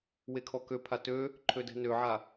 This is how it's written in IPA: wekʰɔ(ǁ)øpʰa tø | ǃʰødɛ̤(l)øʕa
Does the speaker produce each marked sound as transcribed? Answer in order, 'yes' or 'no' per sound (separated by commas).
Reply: no, no